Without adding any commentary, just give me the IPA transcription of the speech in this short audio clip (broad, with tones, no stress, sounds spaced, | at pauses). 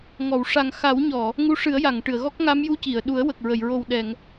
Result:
ŋ ɔ˨˩˨ w ʂ a˨˩ ŋ x a˨˩˦ w ɲ ɔ˨˩˨ | ŋ u˧˥ ʂ ɨ˨˩˦ ə̯ j a˨˩˨ ŋ ʈ ɨ˨˩˨ ə̯ ɣ ɔ˦˥ k̚ ŋ a˧˥ m j u˧˥ c i˨˩˨ ə̯ ɗ u˨˩˦ ə̯ w ə˨˩ k̚ ɹ ə˨˩˨ j ɹ o˨˩ w ɗ ɛ˨˩˨ ŋ